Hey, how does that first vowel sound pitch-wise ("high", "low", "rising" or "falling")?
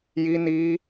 high